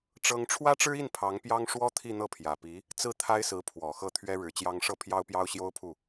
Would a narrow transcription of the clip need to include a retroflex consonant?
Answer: yes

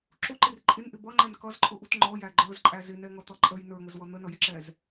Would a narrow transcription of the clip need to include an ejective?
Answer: yes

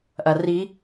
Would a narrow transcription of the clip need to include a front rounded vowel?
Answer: no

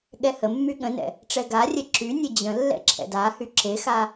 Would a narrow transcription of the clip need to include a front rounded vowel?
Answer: yes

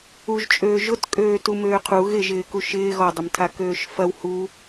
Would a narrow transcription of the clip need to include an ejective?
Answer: yes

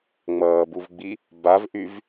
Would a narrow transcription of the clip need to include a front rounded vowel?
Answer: yes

